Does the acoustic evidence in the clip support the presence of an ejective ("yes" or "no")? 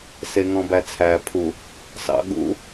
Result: no